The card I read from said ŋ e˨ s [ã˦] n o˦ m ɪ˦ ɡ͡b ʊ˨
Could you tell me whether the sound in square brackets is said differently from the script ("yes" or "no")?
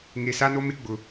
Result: yes